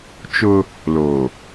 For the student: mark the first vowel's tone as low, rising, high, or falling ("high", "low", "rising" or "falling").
high